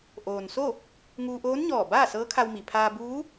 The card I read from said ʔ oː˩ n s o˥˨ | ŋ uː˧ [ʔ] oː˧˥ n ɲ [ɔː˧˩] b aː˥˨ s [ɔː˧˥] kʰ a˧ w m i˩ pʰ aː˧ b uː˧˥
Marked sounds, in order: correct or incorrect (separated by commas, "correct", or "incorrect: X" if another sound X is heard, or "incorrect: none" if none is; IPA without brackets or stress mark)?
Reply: correct, correct, incorrect: ɤː˧˥